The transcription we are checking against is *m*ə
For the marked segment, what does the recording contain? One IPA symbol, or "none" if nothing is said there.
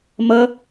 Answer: m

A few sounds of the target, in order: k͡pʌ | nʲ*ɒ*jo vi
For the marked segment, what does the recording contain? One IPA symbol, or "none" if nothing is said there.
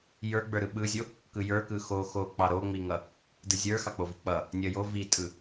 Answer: ʌ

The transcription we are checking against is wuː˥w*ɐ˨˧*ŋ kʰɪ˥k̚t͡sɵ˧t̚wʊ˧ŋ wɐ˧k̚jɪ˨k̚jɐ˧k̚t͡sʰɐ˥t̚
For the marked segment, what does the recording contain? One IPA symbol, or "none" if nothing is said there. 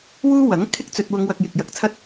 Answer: ɐ˨˥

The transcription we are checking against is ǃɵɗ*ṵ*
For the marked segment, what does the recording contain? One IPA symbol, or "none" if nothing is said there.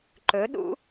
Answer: ṵ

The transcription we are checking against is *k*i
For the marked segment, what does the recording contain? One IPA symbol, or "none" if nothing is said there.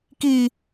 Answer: k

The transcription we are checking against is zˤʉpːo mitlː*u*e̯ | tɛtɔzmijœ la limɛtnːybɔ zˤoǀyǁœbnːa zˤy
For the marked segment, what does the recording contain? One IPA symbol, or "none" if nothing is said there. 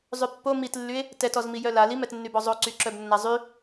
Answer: y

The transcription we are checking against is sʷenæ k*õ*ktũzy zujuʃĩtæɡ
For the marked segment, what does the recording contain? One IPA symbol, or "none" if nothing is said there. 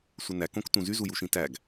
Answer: õ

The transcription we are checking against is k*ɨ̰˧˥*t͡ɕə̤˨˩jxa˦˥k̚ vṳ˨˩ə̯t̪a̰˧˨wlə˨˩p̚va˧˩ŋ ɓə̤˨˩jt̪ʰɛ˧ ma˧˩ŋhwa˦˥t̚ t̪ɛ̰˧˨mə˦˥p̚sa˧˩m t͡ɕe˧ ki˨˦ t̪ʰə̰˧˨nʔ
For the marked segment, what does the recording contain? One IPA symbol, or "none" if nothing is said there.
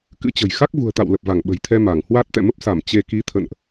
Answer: ɨ̰˧˥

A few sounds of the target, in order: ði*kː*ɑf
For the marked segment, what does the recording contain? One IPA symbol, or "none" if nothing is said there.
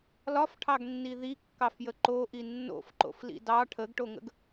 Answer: kː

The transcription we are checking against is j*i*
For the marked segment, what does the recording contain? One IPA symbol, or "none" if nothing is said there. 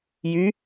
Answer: y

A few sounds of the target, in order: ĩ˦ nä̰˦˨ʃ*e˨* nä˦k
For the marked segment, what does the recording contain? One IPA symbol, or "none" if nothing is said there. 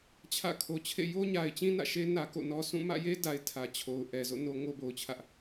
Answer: e˦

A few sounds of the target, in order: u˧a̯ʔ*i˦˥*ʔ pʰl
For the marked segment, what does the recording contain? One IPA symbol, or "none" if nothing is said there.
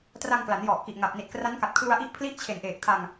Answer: i˦˥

